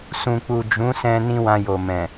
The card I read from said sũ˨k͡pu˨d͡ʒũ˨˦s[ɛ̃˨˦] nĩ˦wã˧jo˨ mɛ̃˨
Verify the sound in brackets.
incorrect: ɛ̃˧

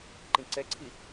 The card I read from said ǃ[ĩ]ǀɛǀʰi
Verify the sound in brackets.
correct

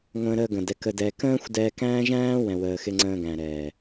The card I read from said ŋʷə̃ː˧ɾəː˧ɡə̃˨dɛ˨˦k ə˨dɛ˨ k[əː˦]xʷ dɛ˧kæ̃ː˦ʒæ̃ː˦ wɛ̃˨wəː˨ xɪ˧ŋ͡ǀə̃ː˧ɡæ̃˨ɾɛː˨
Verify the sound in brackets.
incorrect: ə̃ː˦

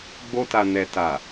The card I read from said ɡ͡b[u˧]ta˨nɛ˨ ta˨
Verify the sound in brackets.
incorrect: o˧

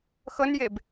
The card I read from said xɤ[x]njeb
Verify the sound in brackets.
incorrect: none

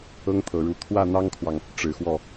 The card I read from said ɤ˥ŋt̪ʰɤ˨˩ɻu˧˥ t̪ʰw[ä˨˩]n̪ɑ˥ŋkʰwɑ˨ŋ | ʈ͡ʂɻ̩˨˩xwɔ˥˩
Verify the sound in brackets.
incorrect: ä˥˩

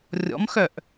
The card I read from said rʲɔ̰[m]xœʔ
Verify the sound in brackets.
correct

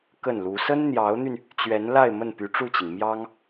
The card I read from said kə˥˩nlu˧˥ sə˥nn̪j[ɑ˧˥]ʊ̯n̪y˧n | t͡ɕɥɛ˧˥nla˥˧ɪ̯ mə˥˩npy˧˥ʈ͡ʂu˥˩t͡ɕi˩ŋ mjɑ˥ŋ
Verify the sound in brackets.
correct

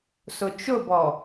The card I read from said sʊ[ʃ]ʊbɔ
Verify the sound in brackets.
incorrect: t͡ʃ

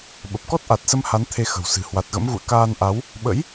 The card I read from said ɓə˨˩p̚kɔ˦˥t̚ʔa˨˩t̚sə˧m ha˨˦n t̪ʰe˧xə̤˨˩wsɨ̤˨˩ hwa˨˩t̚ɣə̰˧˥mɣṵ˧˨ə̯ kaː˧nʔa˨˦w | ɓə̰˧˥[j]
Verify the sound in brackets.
correct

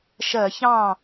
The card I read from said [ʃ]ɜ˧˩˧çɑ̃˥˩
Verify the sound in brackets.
correct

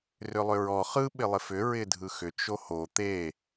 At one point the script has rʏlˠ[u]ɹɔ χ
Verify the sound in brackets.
incorrect: ʏ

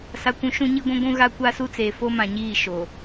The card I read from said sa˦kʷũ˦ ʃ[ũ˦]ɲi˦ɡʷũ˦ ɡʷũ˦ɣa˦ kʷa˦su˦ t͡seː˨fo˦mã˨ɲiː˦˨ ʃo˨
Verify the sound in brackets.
correct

